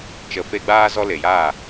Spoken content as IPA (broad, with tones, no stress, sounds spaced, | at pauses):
t͡ʃ ə˨ f e˧ ɡ͡b aː˧ z ɔ˧ l e˨ j aː˦˨